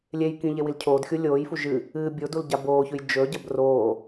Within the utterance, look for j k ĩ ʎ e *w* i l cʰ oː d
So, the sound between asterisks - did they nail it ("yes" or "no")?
yes